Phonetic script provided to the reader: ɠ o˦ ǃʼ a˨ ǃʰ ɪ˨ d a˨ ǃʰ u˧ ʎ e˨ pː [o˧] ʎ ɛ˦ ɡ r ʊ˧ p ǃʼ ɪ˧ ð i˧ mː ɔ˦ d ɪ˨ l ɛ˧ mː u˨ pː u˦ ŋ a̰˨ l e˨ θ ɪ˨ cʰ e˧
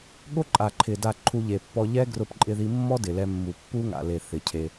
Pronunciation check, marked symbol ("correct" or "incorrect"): incorrect